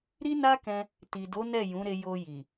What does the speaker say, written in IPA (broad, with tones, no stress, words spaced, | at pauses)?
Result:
ɾi˦na˦kɛ̃˧ | ti˨do˨˦ nɛ˦˨jũ˨˦ɾe˧ jo˧ji˨